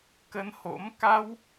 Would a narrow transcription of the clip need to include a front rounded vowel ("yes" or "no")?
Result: no